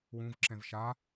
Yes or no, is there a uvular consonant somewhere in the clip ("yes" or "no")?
no